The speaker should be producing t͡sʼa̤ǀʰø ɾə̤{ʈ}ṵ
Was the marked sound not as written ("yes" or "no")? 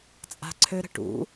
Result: no